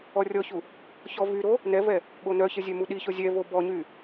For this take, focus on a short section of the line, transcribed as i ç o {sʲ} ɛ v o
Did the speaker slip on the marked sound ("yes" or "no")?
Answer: yes